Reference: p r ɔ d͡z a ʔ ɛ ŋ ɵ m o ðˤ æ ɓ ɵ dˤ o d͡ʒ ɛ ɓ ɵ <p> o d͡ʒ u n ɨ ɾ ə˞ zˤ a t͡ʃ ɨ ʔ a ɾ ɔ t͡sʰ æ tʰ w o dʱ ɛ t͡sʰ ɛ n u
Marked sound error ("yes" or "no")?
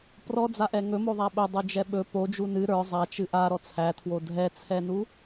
no